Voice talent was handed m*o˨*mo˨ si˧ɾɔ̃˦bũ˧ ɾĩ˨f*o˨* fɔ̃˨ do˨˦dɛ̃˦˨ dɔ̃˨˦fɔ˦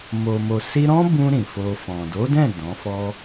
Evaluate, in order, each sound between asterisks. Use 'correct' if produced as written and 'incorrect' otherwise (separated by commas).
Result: correct, incorrect